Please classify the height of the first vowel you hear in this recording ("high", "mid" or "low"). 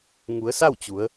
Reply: high